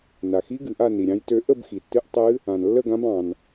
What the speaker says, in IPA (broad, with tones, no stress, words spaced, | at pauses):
na˩xi˧˥ ɡɨ˩ʔa˥˧ ni˩ɾʲɑ̃˧˥jtø˧˥ ʔə˥˧bxi˩tːɨ˧˥ʔ tˤɨ˧˥ | ã˩nlːə˥˧ɡã˧˥b ɑ̃˩n